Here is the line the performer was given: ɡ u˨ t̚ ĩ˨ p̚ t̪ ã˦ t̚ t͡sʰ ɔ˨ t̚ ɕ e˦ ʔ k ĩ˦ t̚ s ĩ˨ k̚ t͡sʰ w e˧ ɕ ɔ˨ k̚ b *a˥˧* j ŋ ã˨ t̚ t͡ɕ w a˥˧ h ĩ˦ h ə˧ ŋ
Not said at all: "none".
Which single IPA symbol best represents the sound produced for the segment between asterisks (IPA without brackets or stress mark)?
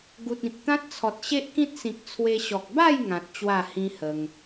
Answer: a˥˧